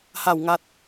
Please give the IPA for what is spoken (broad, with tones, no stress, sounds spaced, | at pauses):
h a˥˧ w ŋ a˦ t̚